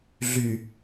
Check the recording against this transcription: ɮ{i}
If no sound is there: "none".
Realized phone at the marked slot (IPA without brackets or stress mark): y